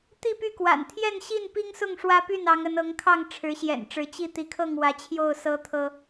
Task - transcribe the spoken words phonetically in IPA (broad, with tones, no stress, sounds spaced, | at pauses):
t̪ i˥˨ p y˥˨ k w a̰˨˩ n t̪ʰ j ɛ˥˨ n ɕ i˥˨ n p i˦ ŋ s ʊ˥˨ ŋ ʂ w ä˦ p y˥˨ n ɑ˨˦ ŋ ə˨˦ n ɤ˨˦ ŋ kʰ ɑ˥˨ ŋ ʈ͡ʂʰ ɻ̩˨˦ ɕ j ɛ̰˨˩ n ʈ͡ʂ ɻ̩˨˦ t͡ɕ i˥˨ t̪ i˨˦ kʰ ɤ˥˨ ŋ w ä˨˦ t͡ɕʰ j o˥˨ ʊ̯ s ɤ˦ t̪ʰ ɤ˦